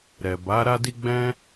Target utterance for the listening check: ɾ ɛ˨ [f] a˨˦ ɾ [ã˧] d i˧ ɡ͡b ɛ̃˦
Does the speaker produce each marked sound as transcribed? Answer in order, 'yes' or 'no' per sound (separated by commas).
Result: no, no